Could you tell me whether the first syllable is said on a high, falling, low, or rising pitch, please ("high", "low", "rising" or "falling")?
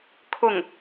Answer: falling